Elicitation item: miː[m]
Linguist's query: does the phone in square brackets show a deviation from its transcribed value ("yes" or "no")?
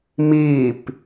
yes